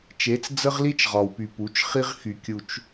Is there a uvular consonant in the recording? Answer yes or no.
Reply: yes